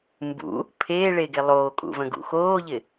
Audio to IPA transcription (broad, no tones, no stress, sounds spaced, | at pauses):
m b ṵ | pʰ eː ɭ e ɡ e lˠ oː kʼ ṵ v ə̃ ɡ ṵ x oː ʎ ɪ